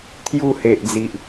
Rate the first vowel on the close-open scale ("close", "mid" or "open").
close